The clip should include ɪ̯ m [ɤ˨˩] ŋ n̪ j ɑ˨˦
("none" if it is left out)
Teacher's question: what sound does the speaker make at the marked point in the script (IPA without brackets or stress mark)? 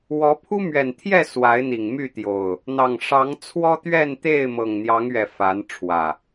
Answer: ɤ˨˩